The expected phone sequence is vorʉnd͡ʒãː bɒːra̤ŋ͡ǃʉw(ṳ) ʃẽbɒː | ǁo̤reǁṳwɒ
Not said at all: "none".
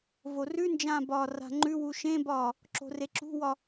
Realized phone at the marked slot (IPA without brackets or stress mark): u